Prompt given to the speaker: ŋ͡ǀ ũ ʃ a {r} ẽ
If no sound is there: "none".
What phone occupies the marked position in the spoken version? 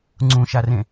r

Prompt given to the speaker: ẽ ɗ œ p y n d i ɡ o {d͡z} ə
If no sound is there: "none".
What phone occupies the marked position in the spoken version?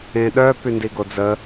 d͡z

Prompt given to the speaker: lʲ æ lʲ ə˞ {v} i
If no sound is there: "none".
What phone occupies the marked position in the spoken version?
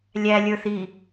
θ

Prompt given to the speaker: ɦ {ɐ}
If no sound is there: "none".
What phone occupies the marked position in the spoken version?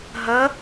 ɐ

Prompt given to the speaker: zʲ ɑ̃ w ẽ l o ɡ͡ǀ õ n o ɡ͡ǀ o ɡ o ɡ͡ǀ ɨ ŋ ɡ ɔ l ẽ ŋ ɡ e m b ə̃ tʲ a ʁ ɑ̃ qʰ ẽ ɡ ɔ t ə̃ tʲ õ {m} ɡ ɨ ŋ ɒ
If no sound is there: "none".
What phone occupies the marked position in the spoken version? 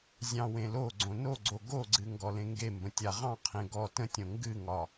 ŋ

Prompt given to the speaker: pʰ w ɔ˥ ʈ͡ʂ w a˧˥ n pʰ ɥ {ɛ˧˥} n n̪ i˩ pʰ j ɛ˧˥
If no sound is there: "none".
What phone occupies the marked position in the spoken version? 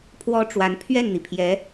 ɛ˥˩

